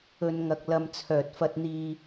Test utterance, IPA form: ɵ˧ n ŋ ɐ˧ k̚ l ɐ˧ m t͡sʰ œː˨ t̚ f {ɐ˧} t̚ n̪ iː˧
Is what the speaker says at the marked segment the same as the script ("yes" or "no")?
yes